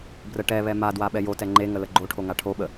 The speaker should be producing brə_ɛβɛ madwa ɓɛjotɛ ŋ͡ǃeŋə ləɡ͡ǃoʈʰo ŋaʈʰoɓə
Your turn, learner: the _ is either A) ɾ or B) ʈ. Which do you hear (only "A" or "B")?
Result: B